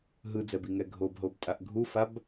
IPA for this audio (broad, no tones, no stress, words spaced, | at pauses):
ɦɯd͡zɛbiŋɛ ɡʱobɦobtʼaʔ ɡʱufab